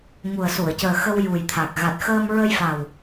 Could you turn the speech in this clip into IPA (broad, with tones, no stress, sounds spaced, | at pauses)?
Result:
ŋ u˨˩ ə̯ s u˨˩˨ ə̯ c əː˨˩ x ə˧ w j u˨˩ j t̪ʰ a˨˩ k̚ ɣ a˨˩ t̚ x əː˧ m ɹ ə˧ j f a˨˩ w